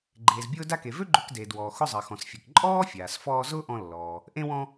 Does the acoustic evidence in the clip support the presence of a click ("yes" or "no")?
yes